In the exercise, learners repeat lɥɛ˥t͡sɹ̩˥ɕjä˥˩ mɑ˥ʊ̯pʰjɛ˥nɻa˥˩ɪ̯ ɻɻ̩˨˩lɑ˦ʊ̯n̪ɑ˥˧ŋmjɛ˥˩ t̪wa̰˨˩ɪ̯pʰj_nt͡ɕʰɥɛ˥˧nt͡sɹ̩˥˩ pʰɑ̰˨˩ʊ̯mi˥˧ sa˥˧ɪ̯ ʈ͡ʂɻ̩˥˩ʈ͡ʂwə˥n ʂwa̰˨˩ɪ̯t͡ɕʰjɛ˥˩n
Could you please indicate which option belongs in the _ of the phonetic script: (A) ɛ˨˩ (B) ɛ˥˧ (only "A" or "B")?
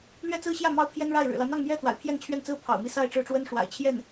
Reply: B